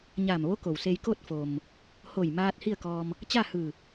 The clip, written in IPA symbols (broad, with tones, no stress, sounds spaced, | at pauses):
ɲ aː˧˩ m ʋ o˧˥ k o˩ w s e˧ j k o˥˨ t̚ f o˩ m | h o˧˩ j m aː˧ t̚ h i˥˨ ə̯ k ɔː˧ m | t͡ɕ a˥˨ h ɯː˧˩